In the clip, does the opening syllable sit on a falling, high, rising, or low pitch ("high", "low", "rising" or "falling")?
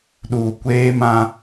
low